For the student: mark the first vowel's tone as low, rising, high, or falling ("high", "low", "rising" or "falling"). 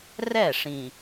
falling